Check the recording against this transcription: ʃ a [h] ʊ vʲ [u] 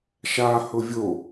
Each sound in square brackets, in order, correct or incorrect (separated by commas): correct, incorrect